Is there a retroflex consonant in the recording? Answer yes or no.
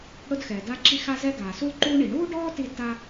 yes